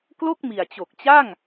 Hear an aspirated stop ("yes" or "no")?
no